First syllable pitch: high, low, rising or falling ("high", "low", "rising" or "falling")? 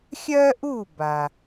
high